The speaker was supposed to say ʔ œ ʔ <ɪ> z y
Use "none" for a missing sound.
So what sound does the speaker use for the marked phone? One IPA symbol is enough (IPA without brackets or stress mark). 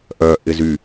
ɪ